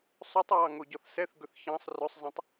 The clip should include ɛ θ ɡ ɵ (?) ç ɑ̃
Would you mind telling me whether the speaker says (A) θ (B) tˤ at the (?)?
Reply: A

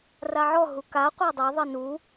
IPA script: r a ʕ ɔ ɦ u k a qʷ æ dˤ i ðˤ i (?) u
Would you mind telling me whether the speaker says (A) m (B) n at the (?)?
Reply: B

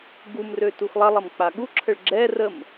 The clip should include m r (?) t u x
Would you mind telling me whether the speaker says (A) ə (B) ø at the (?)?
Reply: B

